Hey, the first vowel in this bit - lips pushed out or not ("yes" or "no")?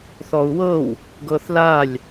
yes